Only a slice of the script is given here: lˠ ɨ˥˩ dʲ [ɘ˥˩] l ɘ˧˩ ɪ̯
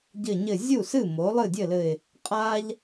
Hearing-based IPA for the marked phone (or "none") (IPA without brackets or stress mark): ɘ˥˩